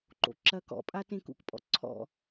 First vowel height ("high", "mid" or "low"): mid